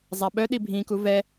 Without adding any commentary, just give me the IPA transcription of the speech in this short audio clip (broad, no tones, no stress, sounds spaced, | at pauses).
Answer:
zˤ a ɓ œ ɗ i bʱ ĩ k u v ɛ